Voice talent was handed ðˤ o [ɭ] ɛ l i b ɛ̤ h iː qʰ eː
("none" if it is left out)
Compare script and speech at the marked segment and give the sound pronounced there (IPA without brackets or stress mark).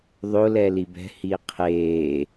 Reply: l